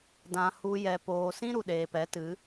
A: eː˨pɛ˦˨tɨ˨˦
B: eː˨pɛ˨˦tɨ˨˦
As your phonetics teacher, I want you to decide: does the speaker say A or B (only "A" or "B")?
B